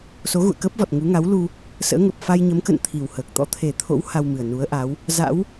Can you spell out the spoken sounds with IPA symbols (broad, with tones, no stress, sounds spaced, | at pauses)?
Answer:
s o˨˦ ɣ ṵ˧˨ ə̯ k əː˦˥ p̚ v ɔ˨˩ t̚ ŋ u˨˦ ŋ a˨˦ w l u˧ | s ə̰ː˧˥ ŋ ə˨˩ p̚ f a˧ j ɲ ə˨˦ m k ə̰˧˨ n t̪ʰ i˨˩ w h əː˨˩ k̚ t̪ ɔ̰˧˥ t̪ʰ e˨˩ t̪ʰ o̰˧˥ w h a˧ w m ɨ˨˩ ə̯ n u˨˦ ə̯ ʔ a˨˦ w | z a̰˧˥ w